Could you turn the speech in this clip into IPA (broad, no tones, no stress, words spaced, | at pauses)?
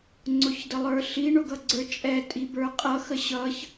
ŋ͡ǀʊçdəlˠə˞ɬi ɳʊɡʌɡ͡ǀə˞t͡ʃʼɛ tʼibə˞qʼʌ xəɕʌç